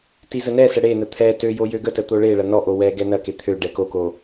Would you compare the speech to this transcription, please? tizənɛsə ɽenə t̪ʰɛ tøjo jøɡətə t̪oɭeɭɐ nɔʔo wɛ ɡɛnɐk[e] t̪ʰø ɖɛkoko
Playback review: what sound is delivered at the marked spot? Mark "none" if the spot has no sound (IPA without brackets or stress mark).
e